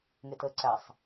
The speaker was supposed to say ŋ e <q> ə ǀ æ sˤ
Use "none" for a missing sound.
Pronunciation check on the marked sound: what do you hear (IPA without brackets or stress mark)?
t